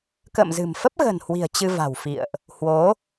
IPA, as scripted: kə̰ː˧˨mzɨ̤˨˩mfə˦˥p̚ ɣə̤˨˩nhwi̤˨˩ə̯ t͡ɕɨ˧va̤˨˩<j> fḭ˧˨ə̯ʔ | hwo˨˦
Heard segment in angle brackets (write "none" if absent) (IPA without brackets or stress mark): w